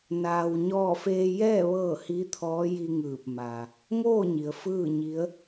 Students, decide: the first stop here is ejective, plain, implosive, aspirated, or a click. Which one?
aspirated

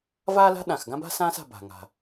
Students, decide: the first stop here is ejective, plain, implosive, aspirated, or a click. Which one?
implosive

